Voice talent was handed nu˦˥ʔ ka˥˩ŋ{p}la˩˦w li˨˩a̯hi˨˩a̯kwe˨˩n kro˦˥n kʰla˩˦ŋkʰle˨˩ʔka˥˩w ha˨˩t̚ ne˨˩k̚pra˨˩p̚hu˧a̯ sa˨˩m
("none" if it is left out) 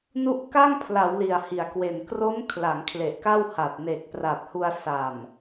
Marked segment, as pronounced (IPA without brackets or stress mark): pʰ